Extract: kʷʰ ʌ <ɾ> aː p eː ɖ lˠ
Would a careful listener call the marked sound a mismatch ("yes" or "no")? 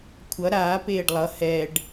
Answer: no